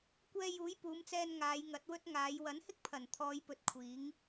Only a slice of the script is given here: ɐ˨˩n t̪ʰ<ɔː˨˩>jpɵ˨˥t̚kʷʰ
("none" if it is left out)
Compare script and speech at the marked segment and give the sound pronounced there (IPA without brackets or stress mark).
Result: ɔː˨˧